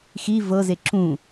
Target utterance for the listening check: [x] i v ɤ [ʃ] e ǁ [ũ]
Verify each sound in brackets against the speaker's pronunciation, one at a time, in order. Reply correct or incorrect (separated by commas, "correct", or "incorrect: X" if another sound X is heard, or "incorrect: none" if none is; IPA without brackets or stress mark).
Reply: correct, incorrect: z, correct